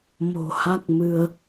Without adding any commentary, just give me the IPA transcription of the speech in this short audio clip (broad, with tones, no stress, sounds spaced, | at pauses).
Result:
m o̤˨˩ h a˦˥ k̚ m ɨ˧ ə̯